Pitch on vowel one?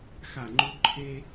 falling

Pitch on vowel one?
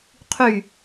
falling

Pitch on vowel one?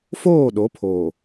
falling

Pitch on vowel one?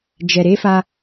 low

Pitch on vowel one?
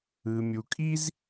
low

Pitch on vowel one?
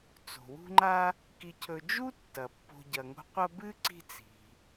low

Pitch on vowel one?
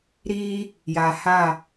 high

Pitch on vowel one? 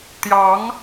rising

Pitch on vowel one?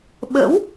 rising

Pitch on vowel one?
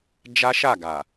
high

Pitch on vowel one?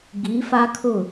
rising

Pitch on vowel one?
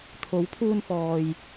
rising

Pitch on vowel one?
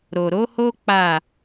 low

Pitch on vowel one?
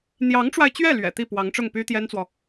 rising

